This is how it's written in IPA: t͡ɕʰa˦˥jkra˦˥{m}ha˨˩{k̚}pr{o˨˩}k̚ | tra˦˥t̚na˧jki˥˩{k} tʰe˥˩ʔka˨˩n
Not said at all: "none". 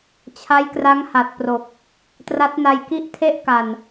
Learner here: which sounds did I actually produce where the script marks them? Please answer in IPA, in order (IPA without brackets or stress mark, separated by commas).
ŋ, t̚, o˨˩, ʔ